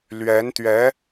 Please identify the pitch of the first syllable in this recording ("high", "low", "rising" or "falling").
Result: rising